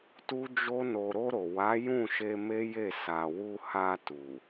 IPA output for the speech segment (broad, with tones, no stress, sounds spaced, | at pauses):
t u˦ d͡ʒ o˦ n o˧ ɾ o˧ ɾ o˨ w a˨˦ j ũ˦˨ ʃ e˧ m e˦ j e˦˨ s a˨ w u˧ h a˧ t u˨